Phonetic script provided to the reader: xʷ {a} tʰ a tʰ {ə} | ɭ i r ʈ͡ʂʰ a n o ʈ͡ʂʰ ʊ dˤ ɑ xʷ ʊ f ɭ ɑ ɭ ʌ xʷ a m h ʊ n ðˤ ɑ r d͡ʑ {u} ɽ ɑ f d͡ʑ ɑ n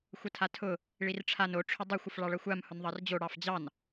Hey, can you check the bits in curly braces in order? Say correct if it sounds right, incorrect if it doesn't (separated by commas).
incorrect, incorrect, incorrect